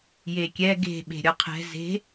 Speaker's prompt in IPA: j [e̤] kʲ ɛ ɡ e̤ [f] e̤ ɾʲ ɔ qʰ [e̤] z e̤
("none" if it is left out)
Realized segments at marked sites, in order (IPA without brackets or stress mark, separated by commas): e, ɓ, ɛ̤